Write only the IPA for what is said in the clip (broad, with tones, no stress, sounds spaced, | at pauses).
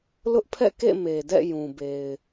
l ʊ˦ ʔ pʰ ɛ̰˦˨ k ḛ˦˨ m e˨ d ɛ̰˦˨ j ũ˨ b e˨ ɪ̯